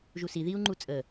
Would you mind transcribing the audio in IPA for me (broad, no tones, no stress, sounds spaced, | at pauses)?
ʒ u s i ð i u̯ ŋ͡ǃ u t͡sʼ ə